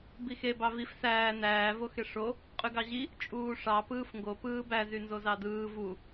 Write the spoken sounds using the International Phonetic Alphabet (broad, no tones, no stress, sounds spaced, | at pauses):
b i x e b ɑ v i f s æː n æː v o x e ʂ o | qʼ y ɡ ɑ ʑ i | t͡ʃʼ uː ʂ ɑ p ɯː f ŋ ɡ o p ɯː b æ z y n z o z ɑ d ɯː v u